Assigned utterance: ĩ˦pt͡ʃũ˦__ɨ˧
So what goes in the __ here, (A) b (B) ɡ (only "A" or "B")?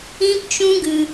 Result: B